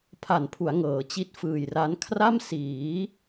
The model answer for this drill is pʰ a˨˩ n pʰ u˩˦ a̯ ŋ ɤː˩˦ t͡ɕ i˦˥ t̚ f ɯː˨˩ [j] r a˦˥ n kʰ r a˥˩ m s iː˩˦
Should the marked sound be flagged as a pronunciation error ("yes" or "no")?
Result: no